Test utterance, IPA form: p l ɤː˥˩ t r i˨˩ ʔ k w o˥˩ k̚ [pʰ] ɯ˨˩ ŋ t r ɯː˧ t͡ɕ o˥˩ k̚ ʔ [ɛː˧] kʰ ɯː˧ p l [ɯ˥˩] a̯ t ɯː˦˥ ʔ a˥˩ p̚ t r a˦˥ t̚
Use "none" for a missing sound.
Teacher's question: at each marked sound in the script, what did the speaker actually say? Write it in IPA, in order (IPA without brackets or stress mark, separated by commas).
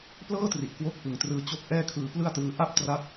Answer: p, ɛː˥˩, ɯ˥˩